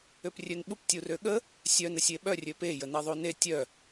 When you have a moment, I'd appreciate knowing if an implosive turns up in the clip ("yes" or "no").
yes